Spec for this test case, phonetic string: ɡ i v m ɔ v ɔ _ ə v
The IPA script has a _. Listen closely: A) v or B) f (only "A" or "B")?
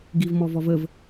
A